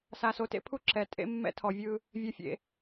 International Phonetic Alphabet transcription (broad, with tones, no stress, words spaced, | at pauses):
sa˨so˨tḛ˦pʰu˦ ǁɛ˨ tʼḛ˦mːɛ̰˦ tʰɔ˨vʲɯ˦ | vʲɛ˨fʲḛ˨